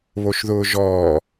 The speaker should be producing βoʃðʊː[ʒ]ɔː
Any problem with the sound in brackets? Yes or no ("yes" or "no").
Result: no